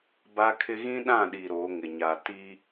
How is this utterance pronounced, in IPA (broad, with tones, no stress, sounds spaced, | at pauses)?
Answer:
b a˦ kʰ ɪ˦ ɣ ĩ˦ ɗ ã˦˨ ɗ i˨ ɾ o˨˦ ŋ ɪ˨ ɲ a˨ t i˦